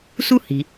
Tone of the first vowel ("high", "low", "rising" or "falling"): high